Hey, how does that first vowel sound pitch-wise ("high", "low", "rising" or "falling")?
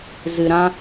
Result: low